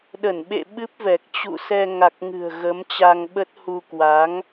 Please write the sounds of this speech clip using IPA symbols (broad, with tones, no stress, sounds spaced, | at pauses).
ɗ ə˧˩ n ɓ ḛ˧˨ ɓ ɨ˦˥ p̚ v ɛ˨˩ k̚ t͡ɕ ṵ˧˨ s ɛ˧ ŋ a˨˩ k̚ ŋ ɨ̤˨˩ ə̯ ɣ ə˨˦ m t͡ɕ a˧ ŋ ɓ ə˦˥ t̚ h u˧ k w a˨˦ ŋ